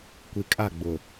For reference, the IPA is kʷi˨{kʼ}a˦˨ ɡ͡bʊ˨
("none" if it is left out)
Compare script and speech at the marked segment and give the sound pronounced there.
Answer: kʼ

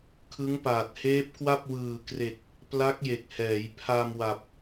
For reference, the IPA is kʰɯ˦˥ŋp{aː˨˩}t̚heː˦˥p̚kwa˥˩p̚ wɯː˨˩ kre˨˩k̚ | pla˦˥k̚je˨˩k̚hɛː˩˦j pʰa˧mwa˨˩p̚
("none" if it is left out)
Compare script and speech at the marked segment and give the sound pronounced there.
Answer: aː˨˩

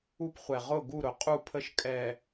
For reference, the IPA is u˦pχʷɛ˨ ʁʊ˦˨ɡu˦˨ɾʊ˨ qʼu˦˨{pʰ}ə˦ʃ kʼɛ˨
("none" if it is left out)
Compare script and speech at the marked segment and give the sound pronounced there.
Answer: pʰ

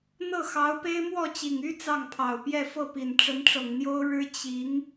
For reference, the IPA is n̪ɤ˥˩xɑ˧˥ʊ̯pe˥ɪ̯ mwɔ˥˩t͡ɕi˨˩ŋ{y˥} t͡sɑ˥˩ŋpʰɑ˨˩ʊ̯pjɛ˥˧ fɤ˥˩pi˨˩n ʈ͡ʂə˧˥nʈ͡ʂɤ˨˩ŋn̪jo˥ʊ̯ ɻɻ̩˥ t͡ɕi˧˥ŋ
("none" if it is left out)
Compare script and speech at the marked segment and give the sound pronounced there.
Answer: y˥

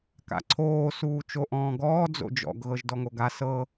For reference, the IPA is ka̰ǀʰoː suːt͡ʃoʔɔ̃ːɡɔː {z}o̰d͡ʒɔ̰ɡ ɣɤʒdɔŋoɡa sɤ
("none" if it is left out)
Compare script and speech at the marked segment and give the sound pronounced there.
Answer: d͡z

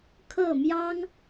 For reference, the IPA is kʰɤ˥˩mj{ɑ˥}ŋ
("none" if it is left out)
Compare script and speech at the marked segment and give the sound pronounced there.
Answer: ɑ˥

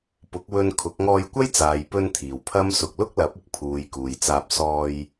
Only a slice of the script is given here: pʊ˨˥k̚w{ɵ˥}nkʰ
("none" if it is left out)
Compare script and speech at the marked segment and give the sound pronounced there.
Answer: ɵ˧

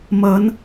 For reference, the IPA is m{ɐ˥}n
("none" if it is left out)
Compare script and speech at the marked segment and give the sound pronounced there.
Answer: ɐ˨˧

